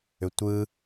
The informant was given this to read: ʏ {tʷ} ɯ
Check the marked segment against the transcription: correct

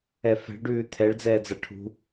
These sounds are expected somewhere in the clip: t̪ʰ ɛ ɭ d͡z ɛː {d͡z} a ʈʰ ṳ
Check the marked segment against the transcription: correct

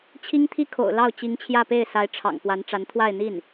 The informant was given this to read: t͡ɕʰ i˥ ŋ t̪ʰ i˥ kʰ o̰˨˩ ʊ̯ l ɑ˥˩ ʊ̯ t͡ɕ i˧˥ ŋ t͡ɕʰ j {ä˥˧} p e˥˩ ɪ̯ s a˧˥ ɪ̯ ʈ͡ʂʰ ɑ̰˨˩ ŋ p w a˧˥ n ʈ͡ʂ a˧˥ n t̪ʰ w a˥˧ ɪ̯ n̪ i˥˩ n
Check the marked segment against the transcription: correct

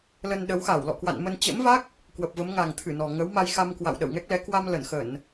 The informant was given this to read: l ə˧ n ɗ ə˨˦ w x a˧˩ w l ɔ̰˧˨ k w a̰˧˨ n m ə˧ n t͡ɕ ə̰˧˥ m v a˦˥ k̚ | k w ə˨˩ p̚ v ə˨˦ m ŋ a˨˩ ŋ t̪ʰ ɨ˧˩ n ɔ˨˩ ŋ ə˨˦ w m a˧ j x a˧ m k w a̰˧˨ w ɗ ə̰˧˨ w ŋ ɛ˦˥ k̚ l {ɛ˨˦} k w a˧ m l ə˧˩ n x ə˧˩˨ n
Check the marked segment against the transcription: correct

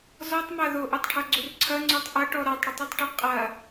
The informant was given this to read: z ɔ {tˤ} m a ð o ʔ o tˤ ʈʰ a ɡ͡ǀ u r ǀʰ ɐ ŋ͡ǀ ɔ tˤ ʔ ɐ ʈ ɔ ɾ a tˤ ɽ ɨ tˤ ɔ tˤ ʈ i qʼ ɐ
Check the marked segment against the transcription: correct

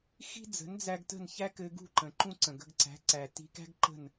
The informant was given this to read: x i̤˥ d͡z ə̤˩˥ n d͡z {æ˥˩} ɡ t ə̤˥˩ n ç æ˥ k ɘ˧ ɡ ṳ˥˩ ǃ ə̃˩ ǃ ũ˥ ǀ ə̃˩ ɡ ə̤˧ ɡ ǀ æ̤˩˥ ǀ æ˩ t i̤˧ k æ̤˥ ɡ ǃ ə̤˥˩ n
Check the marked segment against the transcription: incorrect: æ˧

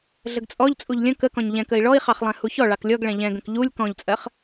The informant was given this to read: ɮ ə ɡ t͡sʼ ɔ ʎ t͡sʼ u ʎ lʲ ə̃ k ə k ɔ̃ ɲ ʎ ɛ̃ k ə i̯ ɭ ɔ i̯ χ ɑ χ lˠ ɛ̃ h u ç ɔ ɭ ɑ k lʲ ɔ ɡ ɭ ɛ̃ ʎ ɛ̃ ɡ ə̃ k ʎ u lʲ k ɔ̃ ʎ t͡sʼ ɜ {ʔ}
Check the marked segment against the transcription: incorrect: χ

